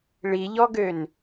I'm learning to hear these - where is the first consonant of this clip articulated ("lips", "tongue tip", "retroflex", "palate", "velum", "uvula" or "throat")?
retroflex